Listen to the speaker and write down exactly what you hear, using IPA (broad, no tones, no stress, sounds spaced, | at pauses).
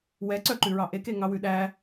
w ɛ ǀ œ ǃ ʉ ɹ ɑ ʔ e k e ŋ ɑ w ʉ ɗ æ